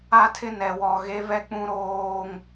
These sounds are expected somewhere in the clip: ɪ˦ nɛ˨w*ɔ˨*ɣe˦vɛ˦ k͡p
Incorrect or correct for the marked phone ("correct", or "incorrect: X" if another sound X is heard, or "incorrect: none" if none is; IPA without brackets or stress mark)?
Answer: correct